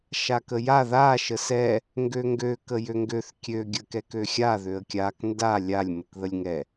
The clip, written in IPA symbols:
ʃ a k ə j a ð a ʃ ə s ɛ | ŋ ɡ ø ŋ ɡ ø k ə j ø ŋ ɡ ø θ kʲ ø ɡʲ ə k ɛ k ø xʲ a ð ø ə̯ kʲ a k n d a lʲ a lʲ m ə k ð ə lʲ ŋ ɛ

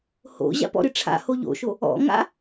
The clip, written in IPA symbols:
h o̰ ʑ a̰ p ɔ̰ ɾ ɨ ʈ͡ʂʰ a̰ h o ʎ o̰ ʃ o | ɔ̰ ŋ a̰

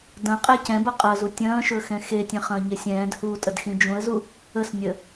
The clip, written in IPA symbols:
d ɐ̃ qʼ ɛ c ɛ̃ b ɐ qʼ ɐ z u tʲ ɐ̃ː ʃ ɵ x ɛ̃ x e tʲ ɛ̃ χ ɐ̃ː ɲ e sʲ ɛ̃ː d h uː tʼ ə d x ĩ d͡ʒ ũ ə̯ z u | ə s nʲ ə

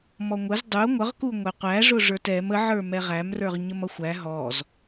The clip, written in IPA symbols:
m ɔ ŋʷ ə z dˤ u ŋʷ ʌ ʁ k u ŋʷ ɛ qʷ æ ʐ ʊ ʐ ə˞ t ɛ m ə ʕ ə˞ m ɛ ʁ æ m r ə˞ ʁ ɲ ə m ʌ xʷ æ ɦ ɔ z

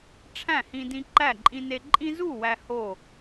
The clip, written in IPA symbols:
ʈ͡ʂʰ æ̃˥˨ h ĩ˦ d ĩ˦ ǃ æ˥˨ ǃʼ ĩ˦ n e˦ ǃʼ ĩ˦ z u˥˨ w æ˦ h o˥˨

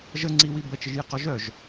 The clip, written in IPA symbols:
ʒ ə ŋ͡ǀ i w i b ə t͡ʃ ɪ ʒ j ɪ q ɔ ʒ œ ʒ

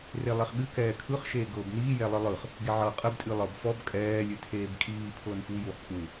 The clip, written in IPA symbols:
r e lˠ e χ ɠ ɨ k ɛː kʰ ɯ χ ʃ eː ɡ ɤː b n iː j ɛ lˠ ɨ lˠ ɯ χ | ɡ e ʕ ɤː qʼ ə b tʼ ɨ lˠ ɤ b f ɔ b kʼ ɛː lʲ ɨ tʰ eː b kʼ iː pʰ ɤː n f u j u χ kʼ u

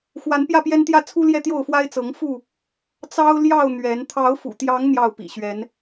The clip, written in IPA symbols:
x w a˨˦ n p j ä˥˨ p j ɛ˦ n t̪ j ä˥˨ t͡sʰ u˦ l j ɛ˥˨ t̪ j o˥˨ ʊ̯ f w a˦ ɪ̯ t͡s ɤ˨˦ ŋ f u˥˨ | t͡s ɑ˦ ʊ̯ l j ɑ˥˨ ʊ̯ n̪ ɥ ɛ˨˦ n t̪ʰ ɑ˨˦ ʊ̯ f ṵ˨˩ t̪ j ɑ˨˦ ŋ n̪ j ɑ˥˨ ʊ̯ p ḭ˨˩ ɕ ɥ ɛ˨˦ n

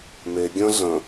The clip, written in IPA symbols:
m e ɡʲ ə̃ ɮ ə̃

